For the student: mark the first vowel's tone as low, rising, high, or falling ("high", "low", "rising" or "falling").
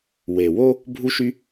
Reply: low